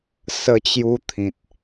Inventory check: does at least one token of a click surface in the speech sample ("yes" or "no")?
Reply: no